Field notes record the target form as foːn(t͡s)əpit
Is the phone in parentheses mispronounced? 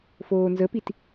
yes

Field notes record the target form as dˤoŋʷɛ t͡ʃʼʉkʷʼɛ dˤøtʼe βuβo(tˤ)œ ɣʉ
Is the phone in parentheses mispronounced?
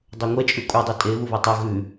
no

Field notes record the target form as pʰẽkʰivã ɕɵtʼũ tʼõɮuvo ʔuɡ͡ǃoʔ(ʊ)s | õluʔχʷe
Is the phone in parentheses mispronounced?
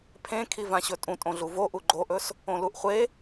yes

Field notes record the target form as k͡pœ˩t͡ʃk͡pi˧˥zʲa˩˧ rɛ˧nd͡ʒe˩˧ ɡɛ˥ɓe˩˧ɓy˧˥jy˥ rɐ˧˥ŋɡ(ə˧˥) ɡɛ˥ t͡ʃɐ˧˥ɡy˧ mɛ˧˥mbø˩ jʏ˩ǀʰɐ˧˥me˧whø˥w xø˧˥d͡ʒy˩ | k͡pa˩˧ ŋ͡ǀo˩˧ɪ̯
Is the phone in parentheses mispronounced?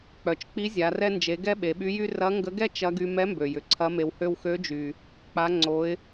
no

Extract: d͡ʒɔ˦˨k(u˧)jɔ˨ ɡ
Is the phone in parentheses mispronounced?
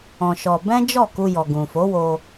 no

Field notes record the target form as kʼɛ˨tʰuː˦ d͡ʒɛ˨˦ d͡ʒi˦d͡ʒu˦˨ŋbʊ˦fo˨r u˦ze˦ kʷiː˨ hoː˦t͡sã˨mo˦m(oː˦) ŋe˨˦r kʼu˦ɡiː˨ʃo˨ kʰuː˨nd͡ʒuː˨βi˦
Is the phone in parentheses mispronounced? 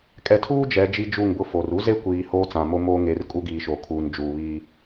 no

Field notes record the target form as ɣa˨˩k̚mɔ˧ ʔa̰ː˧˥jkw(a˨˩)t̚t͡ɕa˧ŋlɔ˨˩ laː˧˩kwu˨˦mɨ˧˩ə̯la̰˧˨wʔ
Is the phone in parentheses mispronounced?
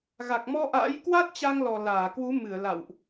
yes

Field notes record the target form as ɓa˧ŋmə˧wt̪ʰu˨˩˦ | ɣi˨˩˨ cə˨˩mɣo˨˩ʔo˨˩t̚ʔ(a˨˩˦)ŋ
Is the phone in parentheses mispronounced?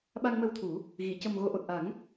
no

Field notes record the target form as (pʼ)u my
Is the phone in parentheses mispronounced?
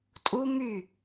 yes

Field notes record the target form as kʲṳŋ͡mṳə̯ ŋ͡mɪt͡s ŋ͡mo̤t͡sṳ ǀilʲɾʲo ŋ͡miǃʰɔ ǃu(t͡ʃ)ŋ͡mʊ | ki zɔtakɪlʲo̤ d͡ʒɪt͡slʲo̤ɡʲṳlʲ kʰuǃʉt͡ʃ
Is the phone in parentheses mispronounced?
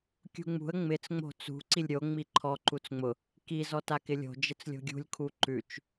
yes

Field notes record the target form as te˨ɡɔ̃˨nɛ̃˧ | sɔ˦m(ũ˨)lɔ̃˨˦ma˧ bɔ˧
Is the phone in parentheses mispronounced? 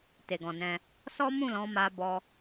yes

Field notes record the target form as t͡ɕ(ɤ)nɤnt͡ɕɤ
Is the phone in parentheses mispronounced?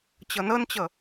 no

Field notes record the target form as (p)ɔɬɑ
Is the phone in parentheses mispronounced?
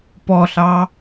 no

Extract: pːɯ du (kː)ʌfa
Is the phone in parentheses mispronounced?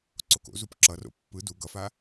yes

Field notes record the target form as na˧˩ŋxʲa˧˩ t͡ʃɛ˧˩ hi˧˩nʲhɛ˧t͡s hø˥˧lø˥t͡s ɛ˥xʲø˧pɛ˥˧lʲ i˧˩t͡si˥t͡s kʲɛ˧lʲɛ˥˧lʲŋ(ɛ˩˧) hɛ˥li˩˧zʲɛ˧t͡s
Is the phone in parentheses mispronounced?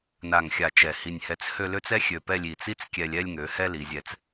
yes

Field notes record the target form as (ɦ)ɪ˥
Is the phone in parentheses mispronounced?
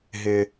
no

